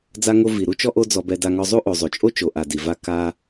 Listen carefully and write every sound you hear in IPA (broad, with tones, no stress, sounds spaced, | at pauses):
d͡z a˧ ŋ o˧ v i˩ ɾ u˥ t͡ʃ ɔ˥ ʔ o˥ d͡z ɔ˧ b ɛ˧ d a˧ ŋ ɔ˧ zˤ u˥ ʔ o˩ zˤ o˩ t͡ʃʼ o˥ t͡ʃ o˩ ʔ a˩ d i˩ v a˧ k a˧